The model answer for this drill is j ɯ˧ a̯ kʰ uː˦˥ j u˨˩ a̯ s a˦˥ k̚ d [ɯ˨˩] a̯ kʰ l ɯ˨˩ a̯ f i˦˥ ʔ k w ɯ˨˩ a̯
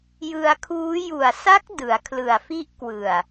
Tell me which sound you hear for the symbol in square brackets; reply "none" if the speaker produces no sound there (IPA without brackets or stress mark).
ɯ˩˦